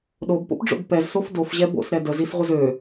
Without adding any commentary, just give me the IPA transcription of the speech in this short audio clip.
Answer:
ɗ o b p o̰ p ɖ͡ʐ o̰ b p ɛ z s o f d o f ʑ ɛ b o̰ s ɾ ɛ d ə z i s ʁʷ ə z ø

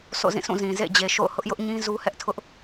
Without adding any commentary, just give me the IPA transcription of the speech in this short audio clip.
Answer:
s o̰˦˨ z ĩ˦˨ s ũ˦˨ z ĩ˨ z ḛ˦˨ d͡ʑ e˨ ʃ o̰˦˨ ʊ̯ h ʊ˦ ʔ j ʊ˦ ʔ ɲ ĩ˦ z u˦ h ɛ˦ ʔ tʰ ʊ˦ ʔ

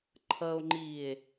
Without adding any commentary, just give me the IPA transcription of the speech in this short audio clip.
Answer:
ǃʰ ʌ o̯ ŋ͡ǃ iː e̯

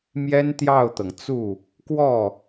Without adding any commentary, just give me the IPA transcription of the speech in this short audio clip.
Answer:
m j ɛ˥ n t̪ j ɑ˥˩ ʊ̯ t̪ ɤ˩ ŋ t͡s u˥˩ | k w ɔ˥˩

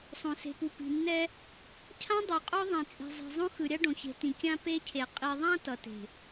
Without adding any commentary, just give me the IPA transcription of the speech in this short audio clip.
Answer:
sˤ õ˨ s e̤˨ p u˨ p i̤˨ nː ɛ˦ | cʰ ã˦ dˤ u˨ qʼ o˦ ðˤ ĩ˨ t͡sʼ i̤˨ zˤ i̤˨ zˤ õ˦ x ɯ˨ ɾʲ a˦ ɖ õ˨ ç e̤˨ t ĩ˨ kʲ ã˦ p e˦ cʰ e˨ qʼ i˨ ðˤ ã˦ t ʌ˨ t e̤˨

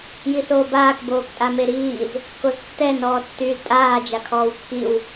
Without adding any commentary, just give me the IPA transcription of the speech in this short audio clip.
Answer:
j i θ oː b aː k b oː k tʼ a m e ɾ iː z | k o z tː ɛ n ɔː tː yː z tʼ aː d͡ʒ a kʰ ɔː w kː i w

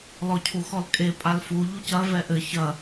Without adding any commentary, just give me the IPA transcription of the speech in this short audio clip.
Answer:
l ɔ cʰ u x ɔ l kʼ e pʼ a l f u ʎ u c ɐ v ɛ ʔ ɘ ç ɐ

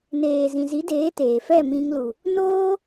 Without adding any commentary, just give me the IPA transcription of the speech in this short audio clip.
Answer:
n eː˨ z ĩ˨ z i˨˦ d eː˨˦ t eː˨ f ɛ˦˨ m ĩ˧ ŋ l u˨ | n oː˦

